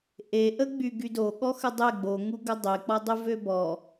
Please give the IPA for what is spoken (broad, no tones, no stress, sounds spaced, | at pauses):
ʔ e ʔ ə ɡ͡b y ɡ y d o ɠ ɔ x ə dˤ e ɡ͡b o ŋ u ɡ ə dˤ e k͡p ɔ dˤ y v ø b ɔ